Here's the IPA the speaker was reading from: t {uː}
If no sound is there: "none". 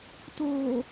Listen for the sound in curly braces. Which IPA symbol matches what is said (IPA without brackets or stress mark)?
oː